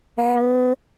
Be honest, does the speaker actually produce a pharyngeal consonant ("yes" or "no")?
yes